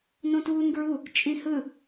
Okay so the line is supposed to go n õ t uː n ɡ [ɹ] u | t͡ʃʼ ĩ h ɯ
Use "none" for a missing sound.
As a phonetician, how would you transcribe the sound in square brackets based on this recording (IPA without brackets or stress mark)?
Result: ɹ